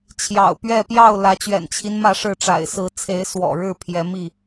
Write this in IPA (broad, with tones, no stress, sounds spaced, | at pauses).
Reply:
t͡ɕʰ j ɑ̰˨˩ ʊ̯ p ɥ ɛ˥˨ p j ɑ˥˨ ʊ̯ l ä˨˦ t͡ɕ ɥ ɛ̰˨˩ n t͡ɕʰ i˦ n m ä˥˨ ʂ ɻ̩˥˨ ʈ͡ʂ a̰˨˩ ɪ̯ s ɹ̩˨˦ t͡sʰ e˨˦ ɪ̯ s w ɔ̰˨˩ ɻ ɻ̩˥˨ pʰ j ɛ˨˦ m i˥˨